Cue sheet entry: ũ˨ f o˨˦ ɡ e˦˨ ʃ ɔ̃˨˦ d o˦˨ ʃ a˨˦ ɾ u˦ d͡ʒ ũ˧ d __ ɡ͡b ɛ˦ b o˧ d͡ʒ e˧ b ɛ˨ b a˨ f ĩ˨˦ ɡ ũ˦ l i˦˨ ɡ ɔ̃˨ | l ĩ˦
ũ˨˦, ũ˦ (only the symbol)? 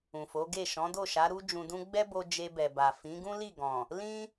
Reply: ũ˦